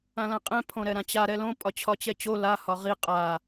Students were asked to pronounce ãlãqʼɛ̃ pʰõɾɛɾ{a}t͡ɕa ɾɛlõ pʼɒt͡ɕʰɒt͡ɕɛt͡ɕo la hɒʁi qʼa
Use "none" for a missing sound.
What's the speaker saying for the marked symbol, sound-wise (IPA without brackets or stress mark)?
ã